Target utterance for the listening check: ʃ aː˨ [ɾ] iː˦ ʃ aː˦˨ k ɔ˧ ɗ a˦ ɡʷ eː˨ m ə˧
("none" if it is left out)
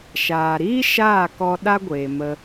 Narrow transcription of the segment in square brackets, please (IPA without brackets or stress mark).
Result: ɾ